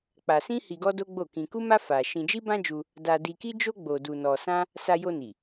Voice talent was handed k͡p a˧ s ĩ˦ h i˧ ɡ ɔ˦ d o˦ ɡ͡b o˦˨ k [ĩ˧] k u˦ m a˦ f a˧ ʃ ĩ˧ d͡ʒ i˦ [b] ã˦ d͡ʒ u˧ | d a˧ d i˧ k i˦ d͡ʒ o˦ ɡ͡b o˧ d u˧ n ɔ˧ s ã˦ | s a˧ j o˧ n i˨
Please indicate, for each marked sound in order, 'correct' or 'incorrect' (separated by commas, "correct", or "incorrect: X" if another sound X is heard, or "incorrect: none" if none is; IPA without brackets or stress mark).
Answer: correct, correct